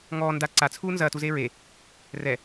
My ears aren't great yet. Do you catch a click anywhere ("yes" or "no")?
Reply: yes